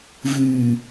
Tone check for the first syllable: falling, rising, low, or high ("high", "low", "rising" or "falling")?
low